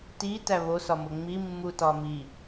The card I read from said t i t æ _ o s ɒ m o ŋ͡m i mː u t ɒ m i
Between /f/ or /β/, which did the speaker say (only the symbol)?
β